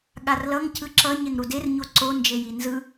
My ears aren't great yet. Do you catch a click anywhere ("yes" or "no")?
yes